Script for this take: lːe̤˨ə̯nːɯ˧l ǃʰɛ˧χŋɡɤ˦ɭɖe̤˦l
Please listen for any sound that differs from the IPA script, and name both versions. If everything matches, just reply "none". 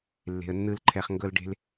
ɭ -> l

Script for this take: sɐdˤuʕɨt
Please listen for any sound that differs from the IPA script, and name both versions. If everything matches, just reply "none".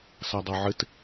u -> o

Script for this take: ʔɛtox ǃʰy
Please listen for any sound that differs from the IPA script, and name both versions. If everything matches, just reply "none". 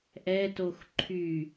none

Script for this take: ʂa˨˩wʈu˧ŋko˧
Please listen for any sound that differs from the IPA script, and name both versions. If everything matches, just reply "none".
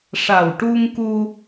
o˧ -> u˧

